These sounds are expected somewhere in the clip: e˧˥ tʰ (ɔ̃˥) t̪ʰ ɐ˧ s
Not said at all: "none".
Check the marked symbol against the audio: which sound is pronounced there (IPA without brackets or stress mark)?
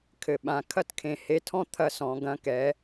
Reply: ɔ̃˥